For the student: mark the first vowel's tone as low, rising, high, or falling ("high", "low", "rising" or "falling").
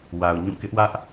low